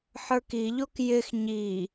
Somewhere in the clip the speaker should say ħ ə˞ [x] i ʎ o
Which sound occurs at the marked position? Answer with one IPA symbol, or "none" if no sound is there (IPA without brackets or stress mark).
k